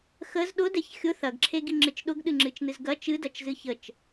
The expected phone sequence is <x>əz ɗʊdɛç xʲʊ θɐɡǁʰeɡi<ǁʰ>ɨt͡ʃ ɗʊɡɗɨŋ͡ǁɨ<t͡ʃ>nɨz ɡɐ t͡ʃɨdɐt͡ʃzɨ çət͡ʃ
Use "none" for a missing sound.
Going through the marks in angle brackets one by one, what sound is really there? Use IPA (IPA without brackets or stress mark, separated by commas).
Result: x, ŋ͡ǁ, t͡ʃ